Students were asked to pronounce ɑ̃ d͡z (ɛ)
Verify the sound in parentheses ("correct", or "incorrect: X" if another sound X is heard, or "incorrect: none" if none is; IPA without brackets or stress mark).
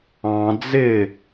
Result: incorrect: ɪ